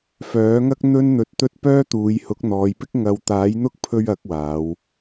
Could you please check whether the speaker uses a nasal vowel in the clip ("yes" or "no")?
no